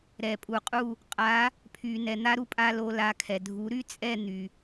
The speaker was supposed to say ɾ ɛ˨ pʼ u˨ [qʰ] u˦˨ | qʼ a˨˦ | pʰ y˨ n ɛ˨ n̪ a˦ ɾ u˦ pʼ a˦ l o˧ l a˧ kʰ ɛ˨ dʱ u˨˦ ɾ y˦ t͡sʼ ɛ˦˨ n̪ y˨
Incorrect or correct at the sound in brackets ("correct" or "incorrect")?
incorrect